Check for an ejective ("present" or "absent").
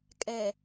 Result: present